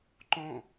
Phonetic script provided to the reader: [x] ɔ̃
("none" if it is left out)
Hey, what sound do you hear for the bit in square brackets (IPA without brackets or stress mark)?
ǃ